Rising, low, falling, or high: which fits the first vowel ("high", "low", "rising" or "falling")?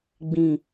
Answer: low